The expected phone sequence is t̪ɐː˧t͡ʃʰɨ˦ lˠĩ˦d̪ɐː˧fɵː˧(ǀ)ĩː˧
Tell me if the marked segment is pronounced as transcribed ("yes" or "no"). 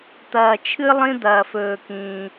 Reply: no